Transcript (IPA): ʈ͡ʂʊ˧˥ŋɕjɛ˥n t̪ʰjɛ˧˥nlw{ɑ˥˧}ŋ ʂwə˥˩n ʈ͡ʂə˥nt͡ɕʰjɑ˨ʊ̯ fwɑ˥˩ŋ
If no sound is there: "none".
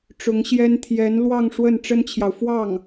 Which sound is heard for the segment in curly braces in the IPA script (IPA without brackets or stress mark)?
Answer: ɑ˥˧